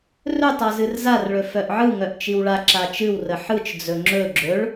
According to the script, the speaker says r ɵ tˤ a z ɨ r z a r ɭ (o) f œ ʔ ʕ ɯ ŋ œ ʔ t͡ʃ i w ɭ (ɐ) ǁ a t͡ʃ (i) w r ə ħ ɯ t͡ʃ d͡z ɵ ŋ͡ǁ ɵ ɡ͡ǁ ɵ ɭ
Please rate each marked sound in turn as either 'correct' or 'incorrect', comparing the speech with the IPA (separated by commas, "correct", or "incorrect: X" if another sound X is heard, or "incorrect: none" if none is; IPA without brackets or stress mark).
incorrect: ɵ, incorrect: a, incorrect: ɨ